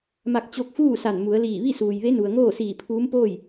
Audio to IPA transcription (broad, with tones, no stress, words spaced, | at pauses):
ma˧k̚t͡ɕo˧˥k̚fuː˥˨ sa˧˩n mu˩˧ə̯liː˧˩ ʋi˥˨suː˩jʋe˧˥nu˩ə̯ ŋoː˥˨siː˧˩pʰuː˧˥mpoː˥˨j